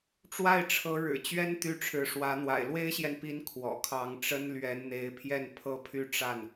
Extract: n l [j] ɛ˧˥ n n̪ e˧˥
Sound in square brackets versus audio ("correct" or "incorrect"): incorrect